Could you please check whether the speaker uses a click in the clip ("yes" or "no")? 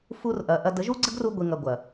yes